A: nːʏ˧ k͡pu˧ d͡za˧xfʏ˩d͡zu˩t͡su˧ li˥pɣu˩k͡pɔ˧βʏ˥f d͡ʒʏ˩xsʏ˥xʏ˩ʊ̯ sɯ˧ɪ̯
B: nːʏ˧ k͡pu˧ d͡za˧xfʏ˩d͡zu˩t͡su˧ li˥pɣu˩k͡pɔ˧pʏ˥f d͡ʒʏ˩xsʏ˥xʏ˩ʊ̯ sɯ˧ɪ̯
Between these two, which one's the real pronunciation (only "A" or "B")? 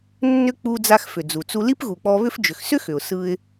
A